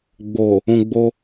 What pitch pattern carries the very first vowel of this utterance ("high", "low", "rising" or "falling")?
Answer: low